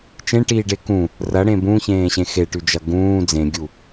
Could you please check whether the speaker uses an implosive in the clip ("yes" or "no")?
no